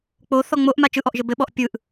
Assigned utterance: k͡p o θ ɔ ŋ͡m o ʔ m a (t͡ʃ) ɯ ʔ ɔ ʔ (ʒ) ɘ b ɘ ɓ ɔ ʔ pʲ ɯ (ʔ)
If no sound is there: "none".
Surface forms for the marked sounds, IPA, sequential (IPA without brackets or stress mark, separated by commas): t͡ʃ, ʒ, ʔ